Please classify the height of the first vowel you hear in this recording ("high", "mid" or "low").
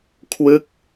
high